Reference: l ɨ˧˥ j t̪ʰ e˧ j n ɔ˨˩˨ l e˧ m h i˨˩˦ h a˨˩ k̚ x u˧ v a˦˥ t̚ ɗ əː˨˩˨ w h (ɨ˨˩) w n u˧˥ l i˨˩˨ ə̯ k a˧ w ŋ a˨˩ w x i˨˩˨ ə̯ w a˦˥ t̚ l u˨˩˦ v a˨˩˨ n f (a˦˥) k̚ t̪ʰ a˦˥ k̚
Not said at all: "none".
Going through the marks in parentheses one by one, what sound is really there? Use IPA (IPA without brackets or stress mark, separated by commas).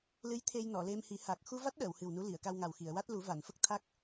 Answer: ɨ˨˩, ə˦˥